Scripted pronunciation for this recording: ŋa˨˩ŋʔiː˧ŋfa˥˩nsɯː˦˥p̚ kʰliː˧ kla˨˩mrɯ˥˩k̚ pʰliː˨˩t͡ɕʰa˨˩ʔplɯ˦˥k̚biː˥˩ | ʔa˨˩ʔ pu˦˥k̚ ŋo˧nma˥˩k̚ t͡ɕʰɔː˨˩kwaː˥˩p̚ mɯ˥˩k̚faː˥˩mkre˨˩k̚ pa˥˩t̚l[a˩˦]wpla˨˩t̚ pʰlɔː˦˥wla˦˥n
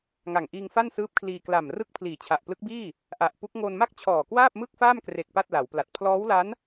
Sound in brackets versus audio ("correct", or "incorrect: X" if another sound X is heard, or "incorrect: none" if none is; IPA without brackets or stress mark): correct